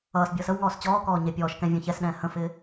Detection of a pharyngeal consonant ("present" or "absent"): absent